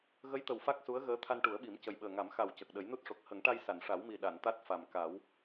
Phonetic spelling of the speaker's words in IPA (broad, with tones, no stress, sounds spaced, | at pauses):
ɣ ə˧˥ j t̪ ə˨˩ w f a˦˥ k̚ s u˧˥ ə̯ ɣ əː˧˥ t̪ʰ a˧ n ʈ u˨˩˦ ə̯ ɓ i˨˩˦ m c ə˨˩ j ɓ əː˨˩ ŋ a˨˩˦ m x a˨˩ w c ə˨˩ k̚ ɗ ə˨˩˦ j n u˦˥ t̚ ʂ o˨˩ k̚ h ə˨˩˦ ŋ ʈ a˧ j s a˨˩˨ n ʂ a˨˩˦ w m i˨˩ ɗ a˨˩˨ n t̪ a˦˥ t̚ f a˨˩ m k a˨˩˦ w